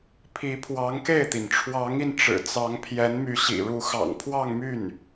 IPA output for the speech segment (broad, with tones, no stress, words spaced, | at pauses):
pʰi˧˥pʰwɑ˧˥ŋke˥˩ɪ̯t̪i˩n ʈ͡ʂʰwɑ˧˥ŋi˧n ʈ͡ʂɻ̩˨˩t͡sɑ˧˥ŋ pʰjɛ˧˥nmy˧˥ɕḭ˨˩ɻu˧˥ xɑ̰˨˩ŋ pʰwɑ˥˧ŋmy˥˩n